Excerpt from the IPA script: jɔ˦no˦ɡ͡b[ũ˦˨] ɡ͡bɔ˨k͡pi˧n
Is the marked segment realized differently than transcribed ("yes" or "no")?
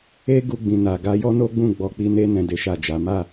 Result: no